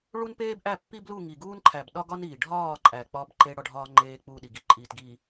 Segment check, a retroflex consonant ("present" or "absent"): present